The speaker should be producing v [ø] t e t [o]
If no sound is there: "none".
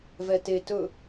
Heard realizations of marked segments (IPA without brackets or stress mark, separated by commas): ɛ, ɵ